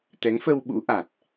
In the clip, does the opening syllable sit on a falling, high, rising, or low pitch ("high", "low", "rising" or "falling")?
rising